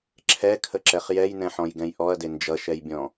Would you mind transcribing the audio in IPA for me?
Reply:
ǁʰ ɛ kʰ ə ǁ ɛ χ j ɛ j n ɛ̃ ħ ɔ̃ j ɡ ɛ̃ j ʔ ɔ ɐ̯ d e n d͡ʒ ʌ ʃ ɛ j bʲ ɔ̃

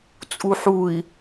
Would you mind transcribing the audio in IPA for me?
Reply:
t͡sʼ u ħ u i̯

